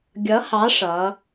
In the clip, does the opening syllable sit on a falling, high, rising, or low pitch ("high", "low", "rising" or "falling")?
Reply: rising